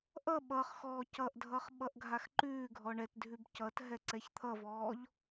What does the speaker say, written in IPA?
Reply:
ʔ ʌ ɓ ʌ χ x ɔː c ʌ ʔ dʱ ʌ χ ɓ ʌ ʔ ɡʱ a x ǃ ʉː ɡʱ ɔ ɳ ɛ t dʱ ʉ b c ʌ t ɦ ɛ ǀ ɛ ç t̪ʰ ʌ v ɔː ʎ

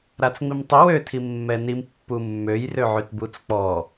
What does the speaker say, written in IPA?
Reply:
ɾ a t͡s ŋ͡m i m tˤ i w ø tʰ i mː ɛ n i m pː u mː ø j r ø ʕ y t b u t͡s k͡p ɔ

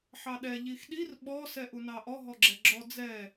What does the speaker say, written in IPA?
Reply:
ħ ɑ ɗ ɛ ʎ i x ɗ i r ɓ ɔ s ɛ ʔ u n ɑ ʔ ɔ ɦ ɔ ɡ͡ǁ ɛ ɡ͡ǁ ɔ d͡z ɛ

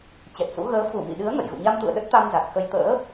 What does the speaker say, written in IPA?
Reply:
t͡ɕ ɛ˨˩ t̚ s ṵ˧˥ ɣ əː˨˦ f u˧˩ m ḭ˧˨ ɗ ɨ˨˦ ə̯ ŋ ə̰˧˨ j ɣ ṵ˧˨ ɲ a˧ m t̪ ṵ˧˨ ə̯ ɗ ə˦˥ t̚ t̪ a˧ m z a˨˩ k̚ x ə˧ j t̪ ə̰ː˧˥

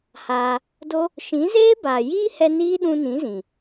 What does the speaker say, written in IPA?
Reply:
h aː˧ | d o˦ | ʃ ĩ˨˦ z eː˦ b aː˨ j iː˦ h ɛ˧ n iː˦ ɗ ũ˧ n ĩ˨˦ z ĩ˨

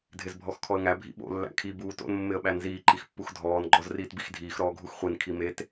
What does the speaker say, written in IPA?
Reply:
dʱ ɪ z bʱ ɔ x kʰ ɔ ə̯ ŋ æ bʱ ḭ ɓ o̰ lː æ̰ kʰ i b uː t o̰ n mː ɪ ə̯ ɓ æ n z iː ǃ i x pː u x dʱ ɔː n ɡ͡ǃ ɔ z r iː t b i x dʱ iː x ɾ ɔː ɡʱ u x χʷ i n kʰ i m e t

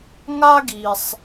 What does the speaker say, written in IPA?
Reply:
ŋ a˦ ɡ i˩ sˤ

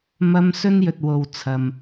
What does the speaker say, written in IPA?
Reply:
m ɐ˧ m s ɵ˥ n j ɵ˨ t̚ w o˨ w t͡sʰ ɐ˨ m

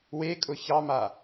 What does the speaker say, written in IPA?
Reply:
w e kʼ ʊ ç ɑ m a

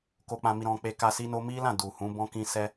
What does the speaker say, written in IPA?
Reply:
k o˦ k͡p ã˦ m i˦ ɾ ɔ̃˧ k͡p e˧ k a˧ s i˦ n o˦ m i˦ l ã˦˨ d u˨ h ũ˨˦ b ɔ̃˦ k ĩ˦ s ɛ˦

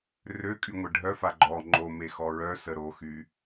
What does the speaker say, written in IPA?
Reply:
r ø kʼ y ŋʷ ɛ ɖʱ œ f a ɡ͡ǃ ɔ ŋ͡ǃ o m e x ɔ ɹ œ s ə ɾ o x y

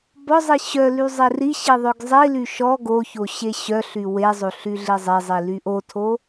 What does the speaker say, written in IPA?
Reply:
b ɔ zˤ i ɕ œ l y zˤ e r i ɕ i ðˤ œ ɡ zˤ i l y ʃ ɔ ɡ o ç o ɕ e ɕ œ ɬ y w e zˤ o ɬ y ɮ i zˤ e zˤ i l y ʔ o tʰ o

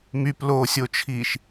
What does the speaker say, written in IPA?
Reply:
m y p l oː sʲ o t͡ʃʰ iː ʃ

